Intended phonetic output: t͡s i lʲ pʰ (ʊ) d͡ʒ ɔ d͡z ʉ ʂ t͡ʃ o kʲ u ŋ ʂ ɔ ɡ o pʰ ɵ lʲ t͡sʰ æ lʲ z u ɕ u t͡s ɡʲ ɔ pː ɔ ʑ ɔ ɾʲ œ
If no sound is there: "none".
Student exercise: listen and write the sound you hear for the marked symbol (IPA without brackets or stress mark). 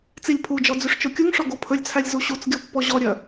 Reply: u